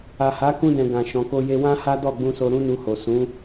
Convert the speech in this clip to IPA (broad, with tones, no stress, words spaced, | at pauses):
a˨ha˨˦kũ˧dɛ̃˨ ɡã˨ʃɔ̃˨ ko˧je˧ wã˦ha˦ dɔ˦˨ɡ͡bũ˧so˧ ɾũ˦nu˧ho˨ sũ˨˦